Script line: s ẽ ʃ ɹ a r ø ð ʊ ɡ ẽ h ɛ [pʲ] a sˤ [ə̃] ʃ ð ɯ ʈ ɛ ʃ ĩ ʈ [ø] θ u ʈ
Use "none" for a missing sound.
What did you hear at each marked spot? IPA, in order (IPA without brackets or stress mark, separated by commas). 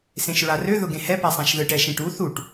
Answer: p, ã, u